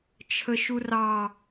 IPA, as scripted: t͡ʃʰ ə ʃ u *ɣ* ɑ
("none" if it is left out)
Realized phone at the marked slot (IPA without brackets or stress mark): r